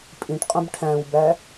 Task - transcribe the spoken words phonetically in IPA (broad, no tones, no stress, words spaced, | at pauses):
pʼĩʈqʼũb ʈʰæ̃wbæ